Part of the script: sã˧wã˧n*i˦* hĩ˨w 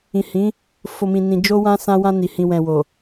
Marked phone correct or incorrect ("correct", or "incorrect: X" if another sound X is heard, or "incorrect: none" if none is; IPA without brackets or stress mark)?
incorrect: i˨